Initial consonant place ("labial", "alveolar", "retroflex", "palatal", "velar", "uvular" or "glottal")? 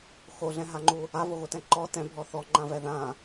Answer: velar